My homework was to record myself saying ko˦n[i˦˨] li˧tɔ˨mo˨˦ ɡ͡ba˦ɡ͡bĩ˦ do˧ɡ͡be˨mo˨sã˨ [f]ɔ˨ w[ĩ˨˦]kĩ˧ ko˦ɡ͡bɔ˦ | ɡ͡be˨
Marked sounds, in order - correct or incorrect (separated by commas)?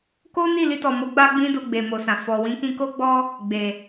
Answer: correct, correct, correct